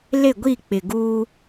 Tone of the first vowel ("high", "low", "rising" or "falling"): falling